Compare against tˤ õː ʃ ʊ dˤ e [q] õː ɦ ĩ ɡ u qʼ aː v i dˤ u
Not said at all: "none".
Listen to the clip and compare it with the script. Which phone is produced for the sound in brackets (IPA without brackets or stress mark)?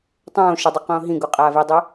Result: q